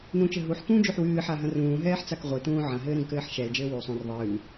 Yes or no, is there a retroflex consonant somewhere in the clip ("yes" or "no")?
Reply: no